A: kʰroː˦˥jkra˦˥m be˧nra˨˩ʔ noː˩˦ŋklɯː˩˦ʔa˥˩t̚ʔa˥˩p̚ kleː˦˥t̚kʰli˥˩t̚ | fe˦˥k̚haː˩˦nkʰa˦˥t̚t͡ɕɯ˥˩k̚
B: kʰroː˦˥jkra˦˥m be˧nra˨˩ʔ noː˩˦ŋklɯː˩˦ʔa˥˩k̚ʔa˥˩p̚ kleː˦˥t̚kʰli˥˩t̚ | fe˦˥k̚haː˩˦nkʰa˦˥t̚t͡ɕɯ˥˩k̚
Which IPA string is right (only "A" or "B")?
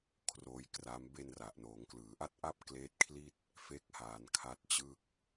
A